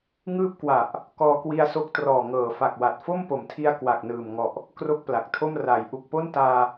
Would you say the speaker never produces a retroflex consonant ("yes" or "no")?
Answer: yes